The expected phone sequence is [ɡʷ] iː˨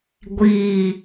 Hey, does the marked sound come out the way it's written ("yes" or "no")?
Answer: yes